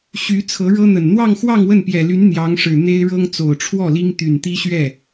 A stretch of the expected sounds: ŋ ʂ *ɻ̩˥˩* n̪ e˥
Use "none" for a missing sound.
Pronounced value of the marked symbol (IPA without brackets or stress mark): ɻ̩˨˩